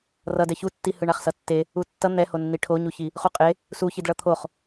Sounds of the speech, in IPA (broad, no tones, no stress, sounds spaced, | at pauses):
r ʌ d ɛ ç u tː i h ɯ ɳ a χ s ʌ tː e | u tː ʌ n̪ ɛ h o nː i ʈʰ o ɲ u ç i | χ u qʼ e | s u ç i d ɭ ʌ t̪ʰ o χ